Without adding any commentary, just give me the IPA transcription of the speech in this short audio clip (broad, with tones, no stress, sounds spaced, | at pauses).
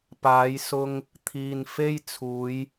p aː˨˧ j s ʊ˧ ŋ | t̪ʰ iː˨ n f e˧ j t͡sʰ uː˨˧ j